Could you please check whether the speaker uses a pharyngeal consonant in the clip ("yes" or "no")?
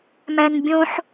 yes